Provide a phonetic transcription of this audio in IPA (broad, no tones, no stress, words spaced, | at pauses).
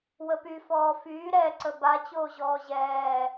wəpy fɔːfyː ɾɛǀə ba t͡ɕoːʑɔːʑɛː